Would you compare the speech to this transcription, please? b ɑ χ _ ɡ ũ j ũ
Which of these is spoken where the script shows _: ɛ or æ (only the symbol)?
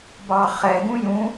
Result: ɛ